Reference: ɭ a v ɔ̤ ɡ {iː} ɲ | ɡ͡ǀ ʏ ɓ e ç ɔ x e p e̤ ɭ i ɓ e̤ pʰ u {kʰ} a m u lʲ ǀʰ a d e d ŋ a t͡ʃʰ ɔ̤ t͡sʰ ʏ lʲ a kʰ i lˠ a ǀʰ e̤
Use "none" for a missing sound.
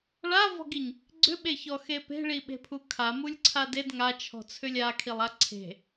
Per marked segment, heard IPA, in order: i, kʰ

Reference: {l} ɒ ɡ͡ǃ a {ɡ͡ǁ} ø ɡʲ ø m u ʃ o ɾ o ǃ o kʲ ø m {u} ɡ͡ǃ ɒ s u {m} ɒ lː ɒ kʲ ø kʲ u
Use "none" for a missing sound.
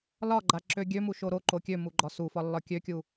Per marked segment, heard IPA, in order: l, ǁ, u, f

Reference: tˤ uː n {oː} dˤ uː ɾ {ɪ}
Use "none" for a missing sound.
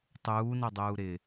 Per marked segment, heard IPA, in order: o, ɪ

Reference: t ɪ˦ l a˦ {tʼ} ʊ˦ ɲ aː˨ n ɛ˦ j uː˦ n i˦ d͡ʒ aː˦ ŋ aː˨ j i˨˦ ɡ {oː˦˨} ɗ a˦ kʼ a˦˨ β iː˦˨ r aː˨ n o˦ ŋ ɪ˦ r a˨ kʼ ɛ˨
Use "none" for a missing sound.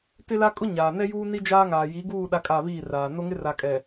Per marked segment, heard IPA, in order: kʼ, uː˦˨

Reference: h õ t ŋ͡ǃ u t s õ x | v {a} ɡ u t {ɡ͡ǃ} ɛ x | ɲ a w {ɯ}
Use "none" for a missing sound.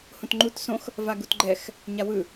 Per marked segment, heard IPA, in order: a, ɡ͡ǃ, ɯ

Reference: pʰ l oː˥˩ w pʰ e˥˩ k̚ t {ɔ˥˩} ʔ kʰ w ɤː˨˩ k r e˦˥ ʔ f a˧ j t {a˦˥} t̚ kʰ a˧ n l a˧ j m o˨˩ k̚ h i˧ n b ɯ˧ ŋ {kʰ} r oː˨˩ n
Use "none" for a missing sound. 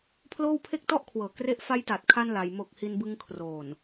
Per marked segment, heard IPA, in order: ɔ˥˩, a˨˩, kʰ

